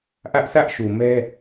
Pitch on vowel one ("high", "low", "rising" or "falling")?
high